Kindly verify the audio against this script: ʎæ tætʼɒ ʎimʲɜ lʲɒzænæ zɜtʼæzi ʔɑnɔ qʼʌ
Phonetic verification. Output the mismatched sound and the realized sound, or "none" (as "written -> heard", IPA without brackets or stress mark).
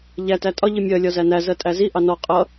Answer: none